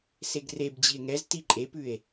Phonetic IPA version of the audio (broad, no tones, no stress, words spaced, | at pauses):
seɡrebd͡ʑie̯ ŋɛzti ǃʼepʉe̯